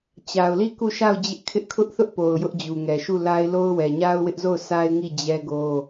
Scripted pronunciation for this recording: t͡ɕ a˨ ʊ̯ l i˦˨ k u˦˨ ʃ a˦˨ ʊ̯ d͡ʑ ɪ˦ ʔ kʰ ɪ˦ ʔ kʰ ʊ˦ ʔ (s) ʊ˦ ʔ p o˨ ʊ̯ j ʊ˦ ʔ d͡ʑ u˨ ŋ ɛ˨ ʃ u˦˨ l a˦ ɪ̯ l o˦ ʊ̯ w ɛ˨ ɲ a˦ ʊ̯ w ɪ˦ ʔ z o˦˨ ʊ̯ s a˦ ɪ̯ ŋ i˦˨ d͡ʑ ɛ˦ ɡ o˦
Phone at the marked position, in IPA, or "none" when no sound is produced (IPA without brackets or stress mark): θ